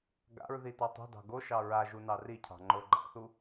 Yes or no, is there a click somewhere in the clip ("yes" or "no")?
yes